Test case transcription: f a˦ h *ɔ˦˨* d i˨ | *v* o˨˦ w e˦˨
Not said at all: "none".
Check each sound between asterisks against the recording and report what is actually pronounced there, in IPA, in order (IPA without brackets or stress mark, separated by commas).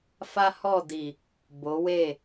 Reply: ɔ˦˨, b